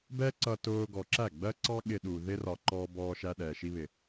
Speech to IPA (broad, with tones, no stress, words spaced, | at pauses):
bɛ˦ǀʌ˧ tʊː˧ɡɔ˨ǁæ˦˨ ɡ͡bɜ˦ǀɑ˦ ɠɪ˧ɗu˨ ðɪ˧rɒ˨ ǃɔː˧ bɔː˧ʃæ˧ɗɛ˨ ʃi˧βɪ˨